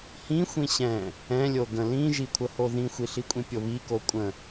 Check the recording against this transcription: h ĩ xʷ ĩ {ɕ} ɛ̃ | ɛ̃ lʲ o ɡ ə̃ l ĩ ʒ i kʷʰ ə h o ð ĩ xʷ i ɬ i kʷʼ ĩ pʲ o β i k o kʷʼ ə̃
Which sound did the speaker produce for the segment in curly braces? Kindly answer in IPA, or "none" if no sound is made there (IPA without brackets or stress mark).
ɕ